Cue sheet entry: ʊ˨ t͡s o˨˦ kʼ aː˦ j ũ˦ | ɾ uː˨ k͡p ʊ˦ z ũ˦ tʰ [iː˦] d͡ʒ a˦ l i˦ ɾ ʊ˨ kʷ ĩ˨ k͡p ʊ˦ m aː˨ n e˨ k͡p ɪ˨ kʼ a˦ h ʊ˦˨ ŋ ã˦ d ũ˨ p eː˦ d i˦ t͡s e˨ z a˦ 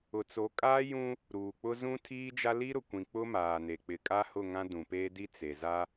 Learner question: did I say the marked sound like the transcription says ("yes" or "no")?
yes